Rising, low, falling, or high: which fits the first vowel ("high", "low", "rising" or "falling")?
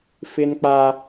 high